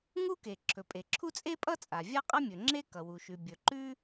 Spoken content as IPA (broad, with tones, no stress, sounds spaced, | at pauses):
ŋ u˥ k e˩ ǁʰ ɵ˩ pʼ e˩ ǁʰ u˥ t͡sʼ e˥ pʼ ʌ˥ t͡sʼ a˩ vʲ a˥ qʼ ʌ˥ mʲ ɵ˩ ŋ͡ǁ e˥ k ʌ˩ w u˩ ʃ ʉ˩ bʲ ɵ˩ ǃ ʉ˥